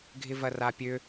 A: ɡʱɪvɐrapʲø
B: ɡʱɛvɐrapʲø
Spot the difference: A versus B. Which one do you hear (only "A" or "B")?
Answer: A